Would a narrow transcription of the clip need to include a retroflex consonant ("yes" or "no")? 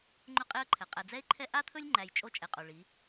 yes